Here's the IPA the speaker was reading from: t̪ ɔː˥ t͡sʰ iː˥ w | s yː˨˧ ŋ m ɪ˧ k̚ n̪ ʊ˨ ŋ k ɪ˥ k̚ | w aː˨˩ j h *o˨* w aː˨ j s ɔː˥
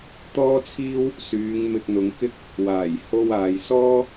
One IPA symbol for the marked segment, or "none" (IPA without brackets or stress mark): o˧